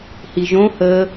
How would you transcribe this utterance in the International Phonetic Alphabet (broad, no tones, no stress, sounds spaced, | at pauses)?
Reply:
h i ʒ õ h əː